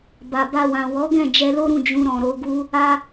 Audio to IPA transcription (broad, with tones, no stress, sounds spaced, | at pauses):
b a˨ b a˧ w ã˨ w ɔ˨˦ ɡ ɛ̃˦˨ d͡ʒ ɛ˧ l o˦ ɾ ũ˦˨ d͡ʒ ũ˧ ɾ ɔ̃˨ ɾ o˧ ɡ u˦ | a˦